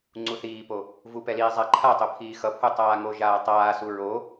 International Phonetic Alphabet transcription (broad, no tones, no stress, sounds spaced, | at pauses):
ŋ͡ǀ u θ iː p o | v u p ɛ l iː zˤ a ǃʰ a tˤ o pʰ iː x ʌ pʰ u tˤ aː ŋ o ʒ aː tˤ aː s u ɹ o